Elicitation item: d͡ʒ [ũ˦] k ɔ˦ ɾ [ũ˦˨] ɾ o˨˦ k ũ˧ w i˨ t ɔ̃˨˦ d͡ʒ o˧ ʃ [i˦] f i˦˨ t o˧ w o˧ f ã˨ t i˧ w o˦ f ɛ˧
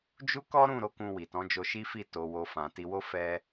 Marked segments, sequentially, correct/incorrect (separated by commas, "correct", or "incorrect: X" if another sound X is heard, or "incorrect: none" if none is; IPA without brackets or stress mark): incorrect: u˦, correct, correct